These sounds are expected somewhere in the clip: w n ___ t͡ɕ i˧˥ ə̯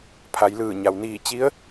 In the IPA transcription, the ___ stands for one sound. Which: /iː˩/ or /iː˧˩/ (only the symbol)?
iː˧˩